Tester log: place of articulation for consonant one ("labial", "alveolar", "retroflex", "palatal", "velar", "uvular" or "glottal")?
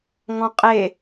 velar